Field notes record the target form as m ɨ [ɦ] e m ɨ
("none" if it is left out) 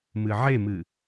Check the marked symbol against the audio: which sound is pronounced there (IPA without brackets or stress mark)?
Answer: ʕ